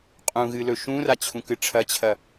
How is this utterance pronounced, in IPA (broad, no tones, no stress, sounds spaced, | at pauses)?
qʼ ũ ɣ ɨ l ɵ ʃ ũ r a t͡ɕʰ ũ k ɨ ʈ͡ʂʰ ɐ t͡ɕʰ ɐ